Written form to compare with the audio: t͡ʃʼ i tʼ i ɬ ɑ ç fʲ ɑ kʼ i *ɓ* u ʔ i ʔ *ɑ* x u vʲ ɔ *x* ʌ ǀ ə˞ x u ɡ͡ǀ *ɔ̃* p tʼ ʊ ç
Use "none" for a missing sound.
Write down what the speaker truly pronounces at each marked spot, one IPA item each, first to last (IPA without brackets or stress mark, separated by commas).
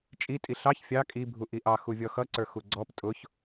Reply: bʱ, ɑ, x, ɔ